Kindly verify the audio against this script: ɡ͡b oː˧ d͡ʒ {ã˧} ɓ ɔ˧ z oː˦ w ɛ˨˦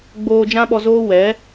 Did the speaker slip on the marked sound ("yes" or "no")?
yes